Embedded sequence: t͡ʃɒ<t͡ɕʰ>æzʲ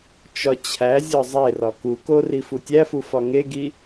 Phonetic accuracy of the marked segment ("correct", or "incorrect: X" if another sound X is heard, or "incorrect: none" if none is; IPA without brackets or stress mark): correct